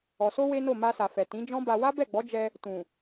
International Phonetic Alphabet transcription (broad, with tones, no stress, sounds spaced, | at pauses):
ɔ˨ s o˧ w e˦ n o˦˨ m a˧ s a˨ f ɛ˨ t ĩ˨˦ d͡ʒ ɔ̃˦ b a˧ w a˦ b ɛ˦˨ ɡ͡b ɔ˨˦ d͡ʒ ɛ˧ | t ũ˨